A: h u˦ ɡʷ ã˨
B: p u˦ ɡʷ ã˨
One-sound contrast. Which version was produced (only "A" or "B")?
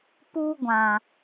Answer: B